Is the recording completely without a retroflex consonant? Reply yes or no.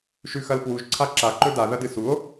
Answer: yes